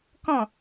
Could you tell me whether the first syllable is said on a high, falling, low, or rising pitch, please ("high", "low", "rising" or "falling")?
falling